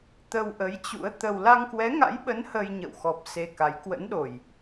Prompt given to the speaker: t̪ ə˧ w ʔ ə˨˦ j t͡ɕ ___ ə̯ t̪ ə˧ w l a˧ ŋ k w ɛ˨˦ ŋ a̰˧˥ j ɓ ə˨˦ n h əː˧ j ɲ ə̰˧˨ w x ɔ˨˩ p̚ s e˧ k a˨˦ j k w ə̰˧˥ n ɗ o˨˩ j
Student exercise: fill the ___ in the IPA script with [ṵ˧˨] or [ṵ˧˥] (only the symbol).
ṵ˧˥